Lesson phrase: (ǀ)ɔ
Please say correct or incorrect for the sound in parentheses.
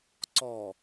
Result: correct